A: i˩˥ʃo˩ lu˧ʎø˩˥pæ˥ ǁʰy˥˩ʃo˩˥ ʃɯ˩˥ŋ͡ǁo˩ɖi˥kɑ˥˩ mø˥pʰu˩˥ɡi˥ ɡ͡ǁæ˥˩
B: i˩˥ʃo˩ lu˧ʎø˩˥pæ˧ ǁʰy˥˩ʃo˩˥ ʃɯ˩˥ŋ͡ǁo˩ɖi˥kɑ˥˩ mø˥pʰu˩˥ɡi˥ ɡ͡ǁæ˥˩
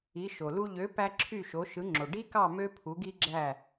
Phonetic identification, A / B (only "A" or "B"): B